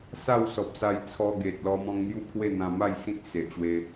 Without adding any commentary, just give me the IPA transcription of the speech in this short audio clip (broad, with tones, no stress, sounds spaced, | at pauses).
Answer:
s a˥˧ w s ɔ˨ p̚ s a˧ j t͡sʰ ɔ˧ ɡ e˨ t̚ l ɔ˧ m ɔ̃˧ ŋ n̪ j u˦ kʰ w e˥˧ n̪ ã˧ m a˥˧ j s ĩ˦ t̚ s e˨ ʔ ɕ w e˧